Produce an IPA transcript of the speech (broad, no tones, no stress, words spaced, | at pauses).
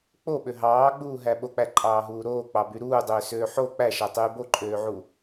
k͡poɓø ɦɑːɡ͡buːɦæ ɓok͡pæǃʼɑːɦuː ɾoːk͡pɑby ɾuːdˤøːsøː ħo k͡pæʃætˤyː boǃʼøːʕu